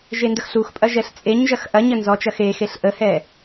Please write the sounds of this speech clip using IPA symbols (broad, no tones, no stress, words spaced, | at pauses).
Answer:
ʒendəxɬuxpʼɐ ʒɛɬt͡sʼeɲʒɐx ʔɐɲə nzɔt͡ʃɐ xexeɬ ʔəhɛ